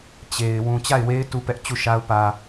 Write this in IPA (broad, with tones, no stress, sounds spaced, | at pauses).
t͡ɕ e˨ ɪ̯ w ũ˨ t͡ɕ a˦˨ ɪ̯ w e˦ ɪ̯ t u˦ p ɛ˦ ʔ t͡ɕ u˦˨ ʃ a˦ ʊ̯ p ä˨